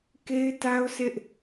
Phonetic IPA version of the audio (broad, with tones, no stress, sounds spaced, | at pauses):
k e˦ ɪ̯ t a˦ ʊ̯ sʰ ɪ˦ ʔ